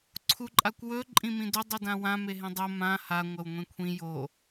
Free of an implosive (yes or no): yes